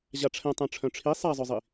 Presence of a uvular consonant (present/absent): absent